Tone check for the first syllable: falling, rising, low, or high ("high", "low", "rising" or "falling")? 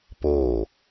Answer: falling